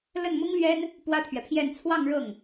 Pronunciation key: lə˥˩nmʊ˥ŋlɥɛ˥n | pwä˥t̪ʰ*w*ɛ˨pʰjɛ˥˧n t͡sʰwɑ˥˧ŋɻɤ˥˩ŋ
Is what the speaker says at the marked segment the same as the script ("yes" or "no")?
no